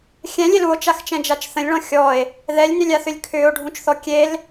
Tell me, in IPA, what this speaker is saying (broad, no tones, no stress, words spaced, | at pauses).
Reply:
xʲɛ̃lʲel uo̯t͡ʃaxt͡ʃɛ̃d͡ʒat͡ʃ θə̃lʲɭɔ̃ xʲɔe̯ | ðɛlʲnʏlʲaθʏlʲ kʰʏːo̯ɖʱũt͡ʃθɔ kʲel